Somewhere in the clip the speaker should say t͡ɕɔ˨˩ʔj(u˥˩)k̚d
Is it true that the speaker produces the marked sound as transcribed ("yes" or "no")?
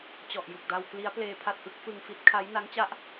no